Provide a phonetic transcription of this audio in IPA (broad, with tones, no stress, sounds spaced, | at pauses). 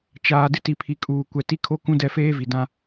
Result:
t͡ʃ aː˨ d ɪ˦ t i˨ pʰ i˨ kʼ uː˨ kʷ ɛ˨ t i˦ kʰ o˦ k ũ˦ d ɛ˦˨ f eː˦ v i˨ d ã˦